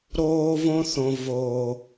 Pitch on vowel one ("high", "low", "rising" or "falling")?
high